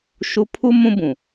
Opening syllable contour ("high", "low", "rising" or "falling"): high